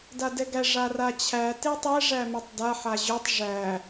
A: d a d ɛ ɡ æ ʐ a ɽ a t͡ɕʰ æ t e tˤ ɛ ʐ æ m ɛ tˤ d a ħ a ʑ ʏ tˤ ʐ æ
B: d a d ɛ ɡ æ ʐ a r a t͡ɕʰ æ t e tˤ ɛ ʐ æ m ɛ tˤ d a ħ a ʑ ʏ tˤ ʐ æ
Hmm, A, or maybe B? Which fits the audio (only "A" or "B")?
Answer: B